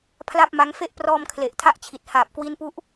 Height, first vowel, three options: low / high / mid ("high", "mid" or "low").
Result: low